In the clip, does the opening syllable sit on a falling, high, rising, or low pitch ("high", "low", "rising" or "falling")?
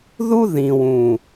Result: high